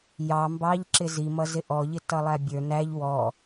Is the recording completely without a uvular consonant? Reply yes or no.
yes